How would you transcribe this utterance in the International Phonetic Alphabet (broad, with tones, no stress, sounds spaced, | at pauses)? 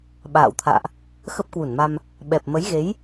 ɓ a̰ː˧˨ w t̪ʰ a̰ː˧˨ ʔ | x ə˦˥ p̚ k w u˧˩ n m a˧ m | ɓ ɛ˨˩ p̚ m ə˨˦ j ɣ e˨˦ j